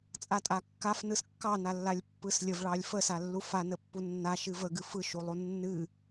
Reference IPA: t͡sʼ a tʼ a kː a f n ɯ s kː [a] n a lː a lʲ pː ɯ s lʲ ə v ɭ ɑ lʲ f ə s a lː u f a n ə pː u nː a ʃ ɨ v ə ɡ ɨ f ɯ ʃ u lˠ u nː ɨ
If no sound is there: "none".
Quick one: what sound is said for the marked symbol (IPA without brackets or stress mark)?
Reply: ɑ